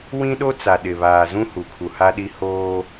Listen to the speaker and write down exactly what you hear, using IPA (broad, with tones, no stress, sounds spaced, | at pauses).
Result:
w ĩ˦ ɗ o˦ t͡s a˨ ɗ ɪ˨ β aː˨ z ũ˦ h u˨ kʰ u˨ h a˦ ɗ i˦ h oː˦